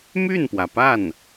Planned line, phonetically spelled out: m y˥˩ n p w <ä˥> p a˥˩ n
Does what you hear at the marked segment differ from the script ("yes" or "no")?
yes